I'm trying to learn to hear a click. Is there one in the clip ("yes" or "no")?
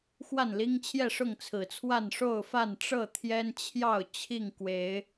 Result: no